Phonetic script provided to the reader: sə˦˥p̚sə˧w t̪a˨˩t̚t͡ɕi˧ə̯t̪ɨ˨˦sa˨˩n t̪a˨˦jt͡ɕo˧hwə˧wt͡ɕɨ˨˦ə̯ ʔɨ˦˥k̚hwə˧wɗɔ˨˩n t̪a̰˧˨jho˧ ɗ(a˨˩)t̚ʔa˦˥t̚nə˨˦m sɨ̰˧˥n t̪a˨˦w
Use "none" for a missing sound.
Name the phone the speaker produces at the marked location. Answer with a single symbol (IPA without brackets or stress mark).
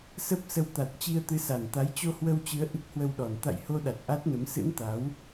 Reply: a˨˩